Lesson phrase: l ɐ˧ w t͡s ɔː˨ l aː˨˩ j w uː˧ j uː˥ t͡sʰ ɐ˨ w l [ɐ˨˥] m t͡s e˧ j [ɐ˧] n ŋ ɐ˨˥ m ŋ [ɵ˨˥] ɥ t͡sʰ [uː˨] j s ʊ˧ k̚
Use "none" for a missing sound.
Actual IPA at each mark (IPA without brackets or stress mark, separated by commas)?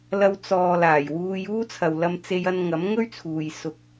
ɐ˧, ɐ˧, ɵ˥, uː˨